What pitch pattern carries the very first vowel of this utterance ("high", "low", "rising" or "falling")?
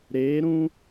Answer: rising